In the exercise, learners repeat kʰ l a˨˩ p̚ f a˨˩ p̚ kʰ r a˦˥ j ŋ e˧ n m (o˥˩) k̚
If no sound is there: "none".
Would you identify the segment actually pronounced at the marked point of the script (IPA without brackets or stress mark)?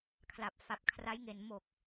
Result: o˨˩